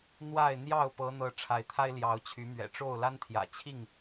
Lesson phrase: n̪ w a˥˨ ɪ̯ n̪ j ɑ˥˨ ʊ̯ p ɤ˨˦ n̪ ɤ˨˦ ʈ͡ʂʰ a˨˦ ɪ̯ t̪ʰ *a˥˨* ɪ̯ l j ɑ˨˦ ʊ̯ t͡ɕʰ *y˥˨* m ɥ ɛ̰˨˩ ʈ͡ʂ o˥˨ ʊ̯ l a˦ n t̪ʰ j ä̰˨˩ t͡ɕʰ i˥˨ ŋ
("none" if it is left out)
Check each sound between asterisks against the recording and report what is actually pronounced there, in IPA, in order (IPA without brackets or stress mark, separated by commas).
a˦, y˨˦